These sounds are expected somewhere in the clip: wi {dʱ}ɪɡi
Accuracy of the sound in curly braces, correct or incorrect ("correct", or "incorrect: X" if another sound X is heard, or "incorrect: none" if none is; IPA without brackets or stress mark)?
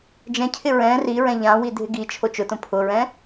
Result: correct